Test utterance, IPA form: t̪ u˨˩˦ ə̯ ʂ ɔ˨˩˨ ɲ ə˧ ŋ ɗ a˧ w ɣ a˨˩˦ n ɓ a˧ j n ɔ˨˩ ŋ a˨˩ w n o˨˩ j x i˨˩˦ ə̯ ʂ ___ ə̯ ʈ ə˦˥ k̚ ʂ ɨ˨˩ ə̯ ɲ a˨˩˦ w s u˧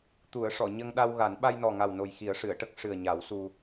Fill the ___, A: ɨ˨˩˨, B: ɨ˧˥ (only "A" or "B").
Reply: A